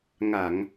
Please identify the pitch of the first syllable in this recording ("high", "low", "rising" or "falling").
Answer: low